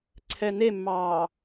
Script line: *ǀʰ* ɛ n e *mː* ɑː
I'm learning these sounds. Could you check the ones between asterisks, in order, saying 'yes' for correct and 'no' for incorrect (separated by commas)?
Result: yes, yes